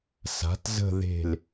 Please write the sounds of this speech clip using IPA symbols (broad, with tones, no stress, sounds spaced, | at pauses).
s a̤˩˥ t z ə̤˥˧ ð e̤˧˩ l